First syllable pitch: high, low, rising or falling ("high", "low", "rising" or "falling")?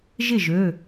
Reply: falling